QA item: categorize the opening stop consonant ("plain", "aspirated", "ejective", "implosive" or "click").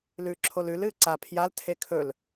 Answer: click